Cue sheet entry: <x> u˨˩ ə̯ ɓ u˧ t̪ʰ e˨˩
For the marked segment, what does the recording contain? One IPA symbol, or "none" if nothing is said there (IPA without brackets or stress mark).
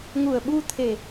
ŋ